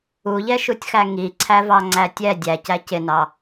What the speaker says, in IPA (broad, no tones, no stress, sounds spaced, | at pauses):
u ʎ ɛ ʃ u tʲ x æ ŋ i ǀʰ æ v ɑ ŋ͡ǀ æ tʲ ɛ dʲ æ c æ c ɪ n ɑ